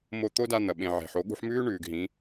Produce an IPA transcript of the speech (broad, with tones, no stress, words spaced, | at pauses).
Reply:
mo˧ t̪o˦da˧n̪ɐ˨ɓẽ˨ ʕe̤˨ħo˨˦ ɠṳ˧ħmʉː˦ ɳʉː˨ɡɦĩ˨˦